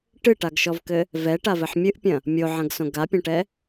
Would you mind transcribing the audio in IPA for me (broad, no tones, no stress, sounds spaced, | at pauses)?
ʈ ɨ ʈ a ɡ ʃ ɔ v k ɘ | v ɛ ʈ a v ɘ ħ mʲ ɨ ʔ pʲ ɐ̃ | mʲ o ʕ ɐ̃ ɡ s õ ɡ a pʲ ɐ̃ ʈ ɛ